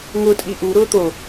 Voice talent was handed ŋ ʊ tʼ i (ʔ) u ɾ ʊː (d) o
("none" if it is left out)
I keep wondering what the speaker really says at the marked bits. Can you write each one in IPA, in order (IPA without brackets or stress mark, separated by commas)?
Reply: ʔ, t̪